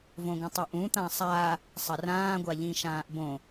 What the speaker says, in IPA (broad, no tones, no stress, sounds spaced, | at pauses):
v õ ɡ ɐ̃ tˤ ʉ ʔ ũ t̪ ã sˤ a | sˤ ɐ r ãː ɡʷ a ʎ ĩ ʃ ãː ʔ b õ